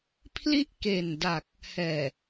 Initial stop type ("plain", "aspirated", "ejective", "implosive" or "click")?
aspirated